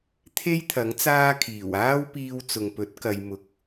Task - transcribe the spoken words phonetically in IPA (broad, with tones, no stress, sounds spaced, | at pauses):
t̪ʰ e˥ j t̪ʰ ɐ˨˥ ŋ t͡s aː˥ kʰ iː˨˩ w aː˥ w p iː˧ w t͡s ʊ˨ ŋ p ɵ˨˥ t̚ k ɐ˨˧ j m ʊ˨˥ k̚